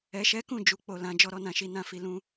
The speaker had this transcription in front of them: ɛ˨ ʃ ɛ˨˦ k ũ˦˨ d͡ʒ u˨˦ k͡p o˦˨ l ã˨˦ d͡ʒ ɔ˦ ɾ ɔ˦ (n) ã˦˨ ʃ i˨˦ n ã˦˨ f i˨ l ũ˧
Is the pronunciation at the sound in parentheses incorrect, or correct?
correct